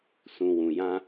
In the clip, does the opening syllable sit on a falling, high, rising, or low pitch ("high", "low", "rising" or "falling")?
low